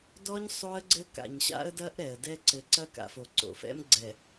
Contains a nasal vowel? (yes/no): no